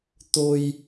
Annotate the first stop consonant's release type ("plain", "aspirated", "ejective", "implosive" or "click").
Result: plain